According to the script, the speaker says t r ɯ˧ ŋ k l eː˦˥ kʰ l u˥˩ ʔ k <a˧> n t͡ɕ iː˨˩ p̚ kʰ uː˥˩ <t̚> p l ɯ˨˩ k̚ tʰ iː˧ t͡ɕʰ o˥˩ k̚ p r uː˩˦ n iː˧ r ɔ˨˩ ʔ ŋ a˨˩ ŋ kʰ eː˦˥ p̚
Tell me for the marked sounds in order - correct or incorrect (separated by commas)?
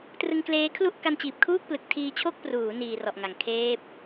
correct, incorrect